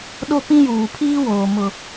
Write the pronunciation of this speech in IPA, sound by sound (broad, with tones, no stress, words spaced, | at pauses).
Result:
ɗo˦pĩ˦juː˨ pʰiː˦ woː˨mʊ˨